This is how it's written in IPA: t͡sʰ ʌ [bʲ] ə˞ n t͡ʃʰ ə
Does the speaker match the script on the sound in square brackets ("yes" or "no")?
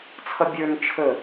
yes